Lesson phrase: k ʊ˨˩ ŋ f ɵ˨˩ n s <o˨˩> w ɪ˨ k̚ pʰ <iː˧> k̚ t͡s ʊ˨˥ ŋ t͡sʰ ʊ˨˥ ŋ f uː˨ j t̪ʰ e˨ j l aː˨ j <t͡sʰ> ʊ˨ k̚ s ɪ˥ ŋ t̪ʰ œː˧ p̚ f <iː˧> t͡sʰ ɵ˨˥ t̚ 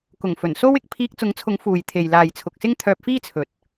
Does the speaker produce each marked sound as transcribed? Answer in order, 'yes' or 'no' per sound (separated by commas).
no, yes, yes, no